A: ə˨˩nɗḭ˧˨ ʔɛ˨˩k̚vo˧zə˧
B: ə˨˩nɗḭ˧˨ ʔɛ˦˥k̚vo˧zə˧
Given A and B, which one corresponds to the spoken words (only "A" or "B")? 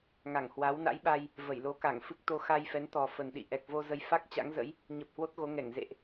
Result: A